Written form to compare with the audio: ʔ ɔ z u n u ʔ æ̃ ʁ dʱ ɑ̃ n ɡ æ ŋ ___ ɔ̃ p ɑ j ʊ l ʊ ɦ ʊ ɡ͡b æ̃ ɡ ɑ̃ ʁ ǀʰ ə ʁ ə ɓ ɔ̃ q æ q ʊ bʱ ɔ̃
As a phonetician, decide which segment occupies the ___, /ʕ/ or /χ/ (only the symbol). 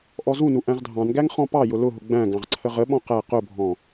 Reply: χ